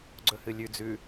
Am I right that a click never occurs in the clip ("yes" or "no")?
no